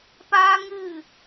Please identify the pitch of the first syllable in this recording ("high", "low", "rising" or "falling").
high